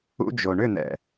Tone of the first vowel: high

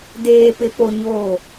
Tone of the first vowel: low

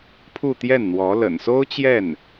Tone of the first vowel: falling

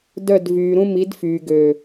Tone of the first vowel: falling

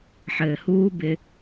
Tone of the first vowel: low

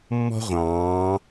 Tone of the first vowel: high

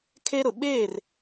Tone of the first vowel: high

